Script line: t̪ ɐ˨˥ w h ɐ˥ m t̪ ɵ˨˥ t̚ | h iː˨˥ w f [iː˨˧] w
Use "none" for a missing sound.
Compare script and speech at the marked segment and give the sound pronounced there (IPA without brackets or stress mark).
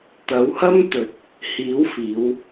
iː˨˧